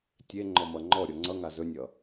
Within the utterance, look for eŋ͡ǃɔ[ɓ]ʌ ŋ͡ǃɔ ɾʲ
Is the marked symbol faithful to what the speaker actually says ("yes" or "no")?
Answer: no